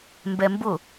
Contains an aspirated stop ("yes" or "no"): no